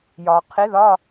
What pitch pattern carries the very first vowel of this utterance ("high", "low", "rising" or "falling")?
low